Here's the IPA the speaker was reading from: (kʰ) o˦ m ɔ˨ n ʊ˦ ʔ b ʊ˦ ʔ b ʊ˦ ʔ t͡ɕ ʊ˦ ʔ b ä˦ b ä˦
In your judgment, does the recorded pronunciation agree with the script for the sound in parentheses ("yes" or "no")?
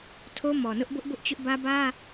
no